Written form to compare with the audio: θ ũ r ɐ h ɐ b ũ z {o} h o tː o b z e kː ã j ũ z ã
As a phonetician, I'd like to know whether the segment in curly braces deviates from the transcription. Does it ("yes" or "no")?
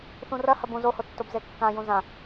no